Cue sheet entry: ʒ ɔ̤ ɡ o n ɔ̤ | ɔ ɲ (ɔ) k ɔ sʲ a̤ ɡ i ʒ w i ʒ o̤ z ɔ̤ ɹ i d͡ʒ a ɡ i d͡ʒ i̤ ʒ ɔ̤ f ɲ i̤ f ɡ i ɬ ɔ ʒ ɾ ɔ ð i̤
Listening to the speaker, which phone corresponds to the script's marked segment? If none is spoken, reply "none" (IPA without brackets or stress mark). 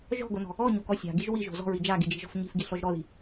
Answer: o